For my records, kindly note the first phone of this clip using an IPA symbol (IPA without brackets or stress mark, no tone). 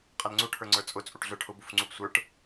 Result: qʼ